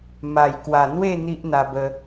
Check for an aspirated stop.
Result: absent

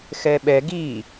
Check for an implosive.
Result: present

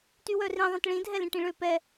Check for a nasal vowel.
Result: present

